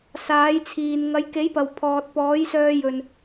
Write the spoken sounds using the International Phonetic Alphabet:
s aː˨˥ j t͡sʰ iː˨ n ŋ ɐ˨˧ j k e˨˥ j p ɐ˨ w pʰ ɔː˨ t̚ p ɔː˨˥ j s œː˧ j ɵ˨ n

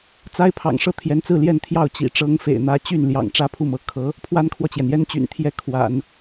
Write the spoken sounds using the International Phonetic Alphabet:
t͡s a˥ ɪ̯ pʰ ɑ̰˨˩ ŋ ʂ ɤ˥˩ t̪ʰ j ɛ˧˥ n t͡s ɹ̩˥˧ l j ɛ˥˧ n t̪ʰ j ɑ˥˩ ʊ̯ t͡ɕ ḭ˨˩ ʈ͡ʂ ɤ˥ ŋ f ḛ˨˩ ɪ̯ n̪ ä˥ t͡ɕ y˥˩ n l j ɑ̰˨˩ ŋ ʈ͡ʂ ä˥ pʰ u˥˩ m ɤ˧˥ kʰ ɤ˧˥ | pʰ w a˥ n kʰ w ɔ˨ t͡ɕ j ɛ˩ n j ɛ˥ n t͡ɕ y̰˨˩ n t̪ʰ j ɛ˥˩ kʰ w a̰˨˩˦ n

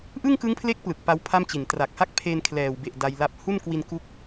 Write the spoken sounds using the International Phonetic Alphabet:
ʔ ɯ˥˩ ŋ k ɯ˦˥ ŋ pʰ l e˦˥ k̚ p l ɯ˨˩ k̚ p a˦˥ w pʰ a˥˩ m t͡ɕ i˨˩ n t r a˨˩ k̚ h a˥˩ k̚ pʰ e˧ n kʰ l ɛː˨˩ w b e˨˩ ʔ d a˧ j l a˦˥ p̚ h u˥˩ n k w i˧ n k u˦˥ k̚

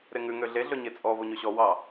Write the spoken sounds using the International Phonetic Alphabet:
ɾ e ŋ ʉ ŋ ø ɮ e ɮ ɵ ɲ e t͡sʼ ɔ v o ɲ ɵ ɕ ɔ w ɑ

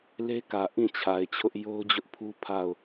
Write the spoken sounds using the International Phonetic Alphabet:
l e˦ k ä˨ ʔ ĩ˦˨ t͡ɕʰ a˨ ɪ̯ t͡ɕʰ ʊ˦ ʔ j o˦ ʊ̯ d͡ʑ ʊ˦ ʔ pʰ u˦ pʰ a˦˨ ʊ̯

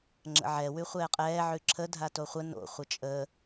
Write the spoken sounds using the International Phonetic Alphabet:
ŋ͡ǁ ə̰ ʕ ɛ w ʉ χʷ ɛː qʼ ɛː ʕ ʉ ǁʰ ə dʱ a t o χʷ ə n o̰ χʷ ə t͡ʃʼ əː

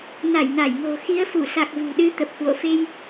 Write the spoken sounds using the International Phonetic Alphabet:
n a˧˩ j n a˧˩ j ŋ o̤˨˩ x i˨˦ ə̯ f u˧˩ s a˨˩ k̚ v ṳ˨˩ ɗ ɨ˨˦ t̪ ə˨˩ p̚ k w o̰˧˨ f e˧ j

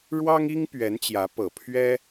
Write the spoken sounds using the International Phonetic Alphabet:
ɻ w ɑ˥ ŋ i˥ ŋ p ɥ ɛ˧˥ n t͡ɕ j ä˧˥ p ɤ˨˩ pʰ ɥ ɛ˥

